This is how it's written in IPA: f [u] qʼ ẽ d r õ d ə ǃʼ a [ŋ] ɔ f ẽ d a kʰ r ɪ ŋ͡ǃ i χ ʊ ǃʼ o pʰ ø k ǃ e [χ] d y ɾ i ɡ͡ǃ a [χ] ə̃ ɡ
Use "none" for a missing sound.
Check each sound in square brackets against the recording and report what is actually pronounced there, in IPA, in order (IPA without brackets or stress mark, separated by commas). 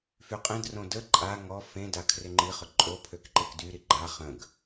y, ŋ, k, χ